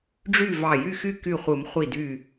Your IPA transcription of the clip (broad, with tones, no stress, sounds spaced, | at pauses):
ɖ͡ʐ y˥˨ v ɑ˧˩ j y˥˨ x y˥˨ k y˧˩ χʷ ɯ˨˩˦ m χʷ i˧˩ d y˧˩